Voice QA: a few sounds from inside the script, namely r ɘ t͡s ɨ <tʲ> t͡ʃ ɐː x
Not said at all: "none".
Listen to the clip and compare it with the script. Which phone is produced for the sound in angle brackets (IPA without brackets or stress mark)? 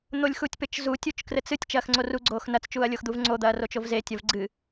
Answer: tʲ